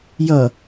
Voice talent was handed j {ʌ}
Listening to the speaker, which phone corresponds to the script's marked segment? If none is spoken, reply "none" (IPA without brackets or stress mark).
ʌ